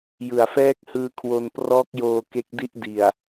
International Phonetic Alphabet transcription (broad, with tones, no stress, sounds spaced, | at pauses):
j ɯ˨˩ a̯ f ɛː˦˥ k̚ h ɯː˧ kʰ w o˧ n p r ɔː˦˥ k̚ j oː˧ k e˦˥ k̚ d i˥˩ ʔ d i˨˩ a̯